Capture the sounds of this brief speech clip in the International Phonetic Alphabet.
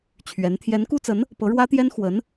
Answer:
t͡ɕʰɥɛ˧˥n t̪ʰjɛ˧˥nku˥t͡sə˧˥n | pɤ˧˥ ɻwä˥t̪jɛ˥n xwə˧˥n

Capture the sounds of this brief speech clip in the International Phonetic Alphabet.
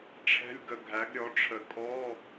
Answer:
ʈ͡ʂʰɛ̤˧˥˧lʲɡə˧˩ ɡʱæ˩˥ɡɾʲɔ˩˥ʈ͡ʂʰə˨˩˦ kʼɔ˧˥˧

